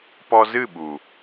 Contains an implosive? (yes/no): yes